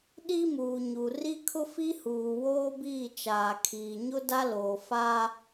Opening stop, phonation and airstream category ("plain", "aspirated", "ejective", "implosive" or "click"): implosive